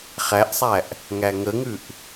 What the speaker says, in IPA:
χ æ ʔ sˤ æ ʔ | ŋ æ ŋ ə ŋ ʉ ʔ

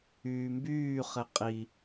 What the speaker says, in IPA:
yː m b yː χ e qʼ i

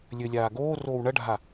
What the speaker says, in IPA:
lʲ ɘ lʲ aː ɡ oː r oː w ɳ ɐ ɖʱ a

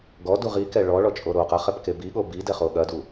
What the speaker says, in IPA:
ɡ ɔ d u ʁ i k ɛ ɭ ɔ ɭ ɔ t͡ʃʼ o ɾ o q ɐ χ ɛ p k e b i ɠ o b i d ɛ χ o ɠ ɐ d u

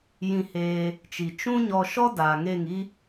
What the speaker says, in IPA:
j ĩ˧ h eː˧ | t͡ʃ i˨ t͡ʃ ũ˦ ɲ ɔ˧ ʃ ɔ˦ d aː˨ ŋ e˦˨ ŋ i˦

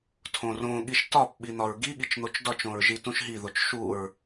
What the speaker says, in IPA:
tʰ õ r õ ɠ i ʃ t ɒ p ɓ i n̪ ɒ ɹ ɡ i ɠ i t͡ʃ n̪ o t͡ʃ d ɒ t͡ʃ õ ɹ ʒ i t ũ ʃ ɦ i ð o t͡ʃ ʃ u ɹ

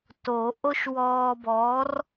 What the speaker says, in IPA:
t o˨˩˦ ʔ o˥ ʃ w ɔː˧ b ɔ˨˥ r

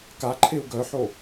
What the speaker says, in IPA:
k a ǃʰ e u̯ ɡ œ ħ o

